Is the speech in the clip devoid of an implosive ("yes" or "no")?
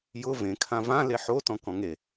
yes